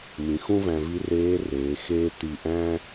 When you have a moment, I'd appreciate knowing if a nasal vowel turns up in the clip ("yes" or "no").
yes